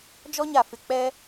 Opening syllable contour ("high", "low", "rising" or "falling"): high